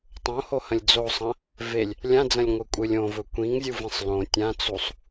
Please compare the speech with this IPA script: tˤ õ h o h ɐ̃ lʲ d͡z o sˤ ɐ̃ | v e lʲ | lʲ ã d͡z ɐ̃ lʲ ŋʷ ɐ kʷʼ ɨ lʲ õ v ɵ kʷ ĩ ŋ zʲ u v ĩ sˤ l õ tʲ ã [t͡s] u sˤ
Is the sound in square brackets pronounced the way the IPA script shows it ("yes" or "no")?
yes